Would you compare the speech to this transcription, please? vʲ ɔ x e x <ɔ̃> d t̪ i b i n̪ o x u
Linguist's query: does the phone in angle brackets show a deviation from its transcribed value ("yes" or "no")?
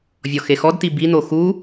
yes